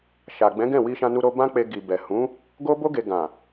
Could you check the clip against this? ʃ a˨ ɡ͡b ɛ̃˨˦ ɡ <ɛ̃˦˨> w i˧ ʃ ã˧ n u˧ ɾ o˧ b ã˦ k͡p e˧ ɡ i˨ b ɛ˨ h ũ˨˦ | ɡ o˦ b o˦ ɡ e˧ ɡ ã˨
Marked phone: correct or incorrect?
correct